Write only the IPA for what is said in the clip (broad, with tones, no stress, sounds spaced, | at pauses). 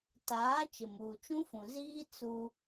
t aː˨˦ t͡ʃ ɪ˨ m uː˨ t͡ʃ ũ˦ f ũ˨ z iː˦ t͡s u˦